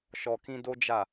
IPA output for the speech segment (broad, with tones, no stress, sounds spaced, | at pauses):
ʃ ɔ˨ k ĩ˧ d o˦ d͡ʒ a˦˨